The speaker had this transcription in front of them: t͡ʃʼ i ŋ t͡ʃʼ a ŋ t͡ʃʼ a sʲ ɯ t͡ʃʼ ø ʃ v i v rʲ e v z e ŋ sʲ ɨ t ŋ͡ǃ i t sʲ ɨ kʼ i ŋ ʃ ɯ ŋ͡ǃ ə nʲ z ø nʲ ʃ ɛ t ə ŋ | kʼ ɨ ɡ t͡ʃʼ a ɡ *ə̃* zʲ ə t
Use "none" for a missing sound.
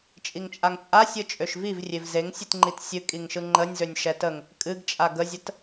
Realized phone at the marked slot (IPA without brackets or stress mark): ə